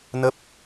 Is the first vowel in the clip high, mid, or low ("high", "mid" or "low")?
mid